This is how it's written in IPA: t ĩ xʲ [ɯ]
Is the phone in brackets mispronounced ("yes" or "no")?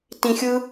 no